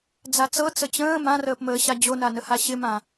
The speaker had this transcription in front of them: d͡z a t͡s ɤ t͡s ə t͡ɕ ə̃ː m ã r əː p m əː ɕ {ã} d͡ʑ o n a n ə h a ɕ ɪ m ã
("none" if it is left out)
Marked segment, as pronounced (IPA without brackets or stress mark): a